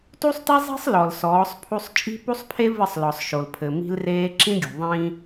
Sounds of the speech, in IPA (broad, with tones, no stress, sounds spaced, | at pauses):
t u˦ sˤ t i˦ zˤ i̤˦ sˤ l ɔ˨ l s ɔː˨˦ sˤ pʰ u˦ sˤ t͡ʃʼ i̤˦ p u˦ sˤ pʰ e˦ v ɨ˦˨ sˤ l ɔ˨ sˤ ʃ o˨ l pʰ ɘ˨ m i̤˦ l r eː˦ ǁ ĩ˦ ɡʲ ṳ˨ ðˤ ĩ˦